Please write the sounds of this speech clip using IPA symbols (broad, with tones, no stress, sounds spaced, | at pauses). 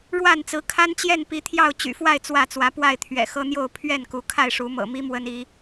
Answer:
ɻ w a˥˨ n t͡s ɹ̩˨˦ kʰ a˦ n t͡ɕ j ɛ˥˨ n p i˨˦ t̪ʰ j ɑ˥˨ ʊ̯ t͡ɕ y̰˨˩ f w a˥˨ ɪ̯ t͡s w ä˥˨ t͡s w ä˨˦ p w a˥˨ ɪ̯ t̪ʰ ɥ ɛ̰˨˩ x ɤ˦ n̪ j o˥˨ ʊ̯ pʰ ɥ ɛ˥˨ n k u˨˦ kʰ a˥˨ ɪ̯ ʂ u˨˦ m ɤ̰˨˩ m i˦ m w ə˦ n i˨˦